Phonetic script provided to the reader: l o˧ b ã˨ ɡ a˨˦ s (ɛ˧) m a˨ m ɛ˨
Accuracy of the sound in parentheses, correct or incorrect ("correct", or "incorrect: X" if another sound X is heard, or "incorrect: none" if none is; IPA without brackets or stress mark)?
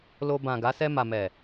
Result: correct